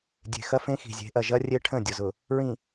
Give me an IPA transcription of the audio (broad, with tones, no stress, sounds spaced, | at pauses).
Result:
dʲ e̤˨ x ɐ˦ f ẽ˦ x i̤˨ zʲ e̤˨˦ ʔ ɐ˨ ʒ ɐ˦ rʲ e˦ ʈʰ ə̃˦˨ dʲ ʊ˨ z ʊ˨ | ɹ ĩ˨